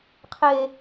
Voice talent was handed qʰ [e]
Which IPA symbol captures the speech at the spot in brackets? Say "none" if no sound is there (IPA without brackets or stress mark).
e